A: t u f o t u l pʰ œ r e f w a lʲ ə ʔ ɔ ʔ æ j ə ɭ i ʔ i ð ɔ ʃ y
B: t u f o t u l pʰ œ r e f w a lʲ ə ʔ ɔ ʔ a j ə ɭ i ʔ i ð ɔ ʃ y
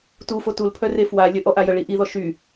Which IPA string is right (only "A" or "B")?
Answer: B